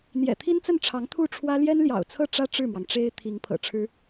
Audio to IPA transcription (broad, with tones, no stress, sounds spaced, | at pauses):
n̪ j ɛ̰˨˩ t̪ʰ i˥ n t͡s ə˥˩ n ʈ͡ʂʰ ɑ˧˥ ŋ t̪ʰ u˥˩ ʈ͡ʂʰ w ä˥ l j ɛ˥ n l j ɑ̰˨˩ ʊ̯ t͡sʰ ɤ˥˩ ʈ͡ʂ ä˥ ʈ͡ʂ ɻ̩˥˩ m w ɑ˩ ŋ ʈ͡ʂ e˥ ɪ̯ t̪ʰ i˧˥ ŋ pʰ ɤ̰˨˩ ʈ͡ʂʰ ɻ̩˥